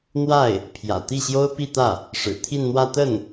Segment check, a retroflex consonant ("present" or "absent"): present